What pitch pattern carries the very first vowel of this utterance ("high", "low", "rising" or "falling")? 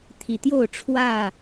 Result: low